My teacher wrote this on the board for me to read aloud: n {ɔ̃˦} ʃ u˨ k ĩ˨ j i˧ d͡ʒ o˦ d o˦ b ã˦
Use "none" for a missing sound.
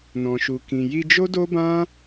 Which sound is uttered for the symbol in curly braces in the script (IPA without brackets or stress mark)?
ɔ̃˨